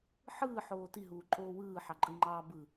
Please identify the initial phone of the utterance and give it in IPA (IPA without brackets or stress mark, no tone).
ħ